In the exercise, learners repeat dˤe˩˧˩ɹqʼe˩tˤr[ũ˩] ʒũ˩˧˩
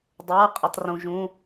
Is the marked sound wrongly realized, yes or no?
no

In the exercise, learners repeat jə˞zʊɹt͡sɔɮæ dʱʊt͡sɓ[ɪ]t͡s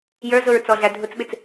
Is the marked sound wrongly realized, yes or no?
no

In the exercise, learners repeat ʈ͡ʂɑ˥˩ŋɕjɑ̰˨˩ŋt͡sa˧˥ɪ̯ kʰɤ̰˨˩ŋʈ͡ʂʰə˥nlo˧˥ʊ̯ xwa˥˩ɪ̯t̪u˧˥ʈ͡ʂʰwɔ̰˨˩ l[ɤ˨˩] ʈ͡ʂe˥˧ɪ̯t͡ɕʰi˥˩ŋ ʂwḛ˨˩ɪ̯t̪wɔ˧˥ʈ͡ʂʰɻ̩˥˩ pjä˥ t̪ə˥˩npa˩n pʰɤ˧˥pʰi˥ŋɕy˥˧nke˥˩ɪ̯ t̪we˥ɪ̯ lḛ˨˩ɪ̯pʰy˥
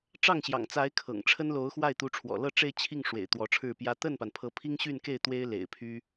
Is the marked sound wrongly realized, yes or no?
yes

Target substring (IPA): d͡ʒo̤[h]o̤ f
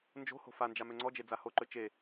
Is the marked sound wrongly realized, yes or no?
no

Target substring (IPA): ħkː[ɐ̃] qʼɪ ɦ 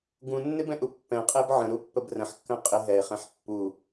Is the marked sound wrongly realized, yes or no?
yes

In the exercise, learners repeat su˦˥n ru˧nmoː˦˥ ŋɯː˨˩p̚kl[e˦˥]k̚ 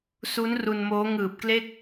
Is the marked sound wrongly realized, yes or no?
yes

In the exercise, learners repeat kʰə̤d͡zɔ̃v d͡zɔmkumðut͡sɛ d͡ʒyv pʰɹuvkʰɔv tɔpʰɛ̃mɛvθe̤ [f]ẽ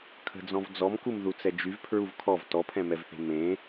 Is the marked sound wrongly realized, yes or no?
yes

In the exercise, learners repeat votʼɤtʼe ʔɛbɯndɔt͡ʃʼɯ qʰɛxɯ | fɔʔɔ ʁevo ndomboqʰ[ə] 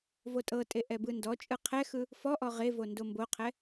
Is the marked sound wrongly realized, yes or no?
yes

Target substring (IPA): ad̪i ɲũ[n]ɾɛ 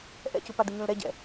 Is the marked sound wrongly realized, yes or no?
yes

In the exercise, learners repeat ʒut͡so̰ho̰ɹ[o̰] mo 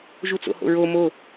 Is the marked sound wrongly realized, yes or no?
yes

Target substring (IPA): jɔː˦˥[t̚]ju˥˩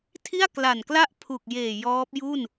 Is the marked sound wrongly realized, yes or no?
yes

